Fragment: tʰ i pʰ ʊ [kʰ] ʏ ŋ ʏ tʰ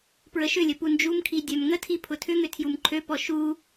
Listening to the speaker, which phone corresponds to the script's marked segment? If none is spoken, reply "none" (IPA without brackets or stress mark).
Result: tʰ